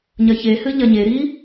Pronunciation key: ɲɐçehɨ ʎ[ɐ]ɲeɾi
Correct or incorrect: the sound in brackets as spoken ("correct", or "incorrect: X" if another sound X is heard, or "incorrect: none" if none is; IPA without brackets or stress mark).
correct